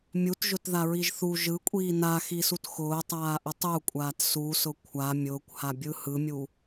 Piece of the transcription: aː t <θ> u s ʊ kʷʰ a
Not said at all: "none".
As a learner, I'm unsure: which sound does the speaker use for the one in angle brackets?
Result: s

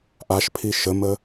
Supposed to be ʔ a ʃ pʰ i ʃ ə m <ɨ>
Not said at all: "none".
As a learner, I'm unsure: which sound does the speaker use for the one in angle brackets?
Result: ə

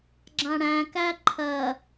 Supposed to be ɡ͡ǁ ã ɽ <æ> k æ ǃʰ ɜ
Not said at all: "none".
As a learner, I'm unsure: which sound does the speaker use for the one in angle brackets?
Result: æ̃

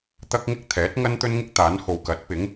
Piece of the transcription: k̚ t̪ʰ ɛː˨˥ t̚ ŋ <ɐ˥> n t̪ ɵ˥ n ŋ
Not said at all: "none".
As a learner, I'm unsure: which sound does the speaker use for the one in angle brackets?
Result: ɐ˥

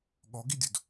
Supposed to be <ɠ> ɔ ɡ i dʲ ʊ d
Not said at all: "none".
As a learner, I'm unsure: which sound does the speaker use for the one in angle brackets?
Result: ɠ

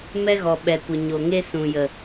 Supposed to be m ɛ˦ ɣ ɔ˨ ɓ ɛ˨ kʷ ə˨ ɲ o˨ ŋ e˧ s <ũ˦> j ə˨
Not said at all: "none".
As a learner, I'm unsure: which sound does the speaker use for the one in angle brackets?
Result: ũ˨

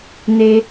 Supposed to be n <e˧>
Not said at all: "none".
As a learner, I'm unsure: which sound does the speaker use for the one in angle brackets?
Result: e˧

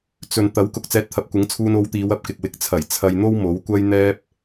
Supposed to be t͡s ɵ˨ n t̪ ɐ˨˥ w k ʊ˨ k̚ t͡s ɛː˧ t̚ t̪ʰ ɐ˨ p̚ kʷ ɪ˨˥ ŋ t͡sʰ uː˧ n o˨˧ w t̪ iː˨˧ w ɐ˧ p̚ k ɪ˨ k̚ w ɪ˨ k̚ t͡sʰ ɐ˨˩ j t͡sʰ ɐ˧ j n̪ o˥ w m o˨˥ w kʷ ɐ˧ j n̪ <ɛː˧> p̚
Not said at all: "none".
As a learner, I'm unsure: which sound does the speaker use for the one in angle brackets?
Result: ɛː˧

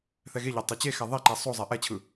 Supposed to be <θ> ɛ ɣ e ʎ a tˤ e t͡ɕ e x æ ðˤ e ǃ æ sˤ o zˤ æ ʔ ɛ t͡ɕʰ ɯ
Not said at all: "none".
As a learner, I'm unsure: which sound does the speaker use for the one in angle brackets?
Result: θ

